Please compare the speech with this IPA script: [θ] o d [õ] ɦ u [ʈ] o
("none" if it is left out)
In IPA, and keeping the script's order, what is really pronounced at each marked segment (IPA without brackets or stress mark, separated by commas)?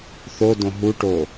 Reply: θ, õ, ʈ